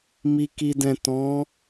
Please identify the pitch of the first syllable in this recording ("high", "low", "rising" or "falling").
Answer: low